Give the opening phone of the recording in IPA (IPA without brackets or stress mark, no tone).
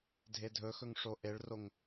dʱ